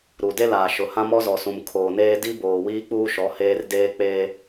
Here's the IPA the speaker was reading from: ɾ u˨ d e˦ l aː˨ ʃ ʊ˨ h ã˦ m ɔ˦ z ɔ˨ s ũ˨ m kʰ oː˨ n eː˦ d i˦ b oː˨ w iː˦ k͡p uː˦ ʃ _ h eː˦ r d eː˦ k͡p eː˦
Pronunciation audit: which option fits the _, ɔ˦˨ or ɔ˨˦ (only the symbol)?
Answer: ɔ˨˦